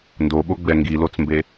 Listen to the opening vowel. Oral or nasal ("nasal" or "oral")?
oral